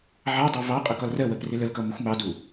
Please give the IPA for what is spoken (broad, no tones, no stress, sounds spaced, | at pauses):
ʕ ɑ dˤ ɑ v ɑ qʼ ʌ k ɒ l r ɜ w ɜ p r ɪ l ə l k ʌ m ʌ xʷ m ɑ d u